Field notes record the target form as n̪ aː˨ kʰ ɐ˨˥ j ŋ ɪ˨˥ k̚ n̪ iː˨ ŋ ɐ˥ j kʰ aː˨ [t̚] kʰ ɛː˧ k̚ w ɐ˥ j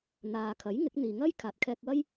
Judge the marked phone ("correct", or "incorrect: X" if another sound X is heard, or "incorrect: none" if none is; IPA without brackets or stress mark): correct